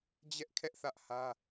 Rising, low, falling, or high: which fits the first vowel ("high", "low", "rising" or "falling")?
high